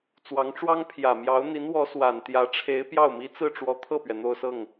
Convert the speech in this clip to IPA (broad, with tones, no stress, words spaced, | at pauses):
t͡swɑ˧˥ŋʈ͡ʂwɑ˥ŋpʰjä˨˩ mjɑ˧˥ʊ̯n̪i˧˥nwɔ˧˥ swa˨˩nt̪jä˧˥ ʈ͡ʂʰe˧˥ɪ̯ pjɑ˥˩ʊ̯mi˥ t͡sɹ̩˥˩ʈ͡ʂwɔ˧˥ t̪ʰɤ˥˩pɥɛ˩ n̪o˥˧ʊ̯sɤ˥˩ŋ